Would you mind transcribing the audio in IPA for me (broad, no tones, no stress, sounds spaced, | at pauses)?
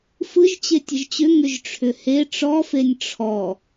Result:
f ɯ ʒ t͡ɕ e tʲ ə ʒ t͡ɕ ʏ ŋ ʏ ʒ ʈ͡ʂʰ ʏ h e ʈ͡ʂ ɔ f e nʲ ʈ͡ʂʰ ɔ